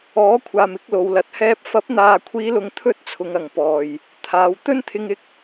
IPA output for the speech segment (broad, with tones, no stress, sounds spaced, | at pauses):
ɔː˨˥ kʷʰ aː˨ m ɪ˨˥ k̚ l o˨˧ w l ɐ˨ t̚ h ɛː˥ p̚ f ɐ˨˥ p̚ n̪ aː˨ kʷʰ iː˨˧ l ʊ˨ ŋ t̪ʰ ɵ˥ t̚ t͡sʰ ʊ˨˧ ŋ ɐ˨ ŋ p ɔː˨ j | t̪ʰ aː˨˧ w t̪ ɵ˥ n t̪ʰ ɪ˧ ŋ ɪ˧ k̚